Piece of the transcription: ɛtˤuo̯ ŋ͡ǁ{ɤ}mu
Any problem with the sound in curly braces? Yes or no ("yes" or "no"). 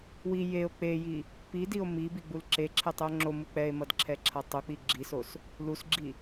yes